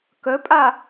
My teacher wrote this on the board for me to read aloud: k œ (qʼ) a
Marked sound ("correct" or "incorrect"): incorrect